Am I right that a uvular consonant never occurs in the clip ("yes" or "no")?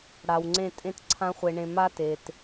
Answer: no